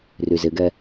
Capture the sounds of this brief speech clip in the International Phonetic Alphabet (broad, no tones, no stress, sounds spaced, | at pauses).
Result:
r y z ɪ ɡ ɛ